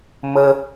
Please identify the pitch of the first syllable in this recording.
high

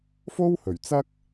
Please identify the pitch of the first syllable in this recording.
high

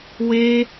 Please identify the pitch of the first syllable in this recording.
high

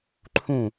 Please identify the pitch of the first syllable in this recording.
falling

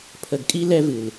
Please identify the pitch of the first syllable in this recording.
low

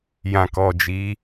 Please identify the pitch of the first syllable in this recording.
low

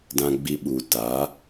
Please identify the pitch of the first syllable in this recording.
low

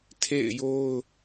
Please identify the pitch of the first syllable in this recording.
falling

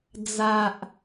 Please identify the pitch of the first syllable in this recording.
low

